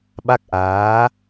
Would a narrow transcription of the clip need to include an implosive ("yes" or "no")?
yes